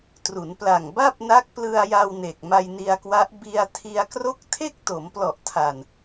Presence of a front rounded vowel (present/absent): absent